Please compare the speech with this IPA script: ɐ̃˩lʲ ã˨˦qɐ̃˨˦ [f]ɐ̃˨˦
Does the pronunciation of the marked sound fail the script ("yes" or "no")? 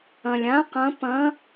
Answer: yes